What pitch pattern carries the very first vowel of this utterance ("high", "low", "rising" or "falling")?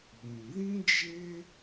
low